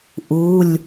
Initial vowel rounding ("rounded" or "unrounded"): rounded